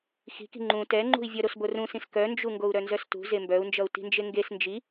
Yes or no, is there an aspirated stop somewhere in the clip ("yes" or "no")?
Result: no